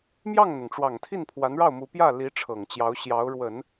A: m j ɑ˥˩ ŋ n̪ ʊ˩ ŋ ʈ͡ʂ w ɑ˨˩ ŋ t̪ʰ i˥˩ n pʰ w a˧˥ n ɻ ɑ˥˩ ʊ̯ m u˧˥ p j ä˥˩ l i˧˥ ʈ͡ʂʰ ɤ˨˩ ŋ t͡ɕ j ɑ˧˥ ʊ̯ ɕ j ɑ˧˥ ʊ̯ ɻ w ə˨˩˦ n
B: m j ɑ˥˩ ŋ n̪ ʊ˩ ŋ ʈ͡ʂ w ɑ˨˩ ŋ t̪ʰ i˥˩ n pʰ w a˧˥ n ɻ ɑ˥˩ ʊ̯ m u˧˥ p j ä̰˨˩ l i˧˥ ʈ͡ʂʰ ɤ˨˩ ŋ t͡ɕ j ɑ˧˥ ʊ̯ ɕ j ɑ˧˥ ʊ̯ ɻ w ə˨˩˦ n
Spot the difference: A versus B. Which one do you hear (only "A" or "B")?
A